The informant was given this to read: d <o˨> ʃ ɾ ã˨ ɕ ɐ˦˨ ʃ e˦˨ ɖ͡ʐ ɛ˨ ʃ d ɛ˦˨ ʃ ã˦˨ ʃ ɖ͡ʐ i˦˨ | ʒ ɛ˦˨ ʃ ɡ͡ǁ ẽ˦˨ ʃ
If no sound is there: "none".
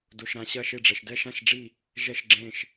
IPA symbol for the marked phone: o˨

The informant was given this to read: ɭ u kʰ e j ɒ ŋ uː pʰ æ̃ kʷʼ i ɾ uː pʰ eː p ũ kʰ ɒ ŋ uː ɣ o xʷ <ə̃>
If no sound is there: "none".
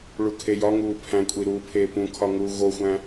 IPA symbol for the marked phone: æ̃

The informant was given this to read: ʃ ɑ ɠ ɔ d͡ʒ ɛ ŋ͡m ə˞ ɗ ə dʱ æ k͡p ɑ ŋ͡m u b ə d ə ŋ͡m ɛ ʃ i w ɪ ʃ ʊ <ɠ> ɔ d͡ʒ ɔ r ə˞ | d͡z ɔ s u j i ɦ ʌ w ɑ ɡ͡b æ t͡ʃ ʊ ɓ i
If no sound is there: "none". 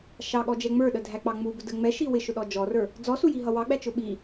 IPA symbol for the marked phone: ɗ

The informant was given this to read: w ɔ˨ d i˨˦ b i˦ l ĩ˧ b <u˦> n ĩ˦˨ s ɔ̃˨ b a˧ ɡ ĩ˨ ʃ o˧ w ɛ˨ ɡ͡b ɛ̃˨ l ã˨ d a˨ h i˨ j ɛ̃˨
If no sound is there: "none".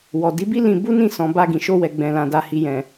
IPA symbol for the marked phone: u˦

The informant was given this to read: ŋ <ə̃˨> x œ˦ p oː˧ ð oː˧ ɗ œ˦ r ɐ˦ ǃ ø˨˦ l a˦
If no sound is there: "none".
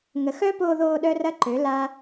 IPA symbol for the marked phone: ə˨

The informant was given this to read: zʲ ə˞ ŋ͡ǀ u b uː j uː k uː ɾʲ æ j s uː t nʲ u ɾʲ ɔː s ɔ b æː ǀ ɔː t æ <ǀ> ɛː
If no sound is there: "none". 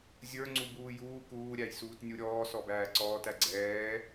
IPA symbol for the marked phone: ɡ͡ǀ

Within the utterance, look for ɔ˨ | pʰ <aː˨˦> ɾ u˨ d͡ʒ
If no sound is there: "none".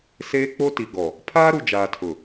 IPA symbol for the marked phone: aː˦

